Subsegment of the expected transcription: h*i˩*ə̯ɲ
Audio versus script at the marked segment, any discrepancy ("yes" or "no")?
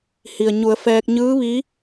no